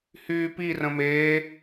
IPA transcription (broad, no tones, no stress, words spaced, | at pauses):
hyːpi rə̃meː